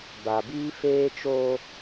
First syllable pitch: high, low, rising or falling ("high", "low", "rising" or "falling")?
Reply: low